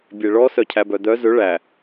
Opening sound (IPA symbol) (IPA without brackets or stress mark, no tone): bʲ